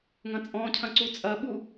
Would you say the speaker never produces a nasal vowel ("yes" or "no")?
no